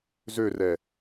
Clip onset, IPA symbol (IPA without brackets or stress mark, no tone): z